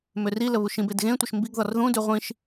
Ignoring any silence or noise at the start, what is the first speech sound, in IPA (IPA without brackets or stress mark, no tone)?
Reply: m